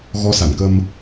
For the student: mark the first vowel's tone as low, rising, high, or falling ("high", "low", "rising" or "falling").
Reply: rising